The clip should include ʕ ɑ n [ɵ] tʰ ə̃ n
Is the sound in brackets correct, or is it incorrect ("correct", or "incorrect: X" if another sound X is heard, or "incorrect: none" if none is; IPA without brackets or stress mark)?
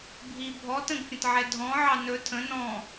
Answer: correct